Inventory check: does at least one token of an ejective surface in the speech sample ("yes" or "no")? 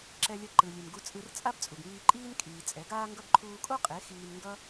yes